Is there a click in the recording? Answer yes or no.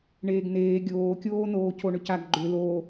yes